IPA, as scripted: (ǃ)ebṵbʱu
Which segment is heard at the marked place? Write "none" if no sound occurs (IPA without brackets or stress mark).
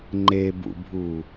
ŋ͡ǃ